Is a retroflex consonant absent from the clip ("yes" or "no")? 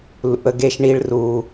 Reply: no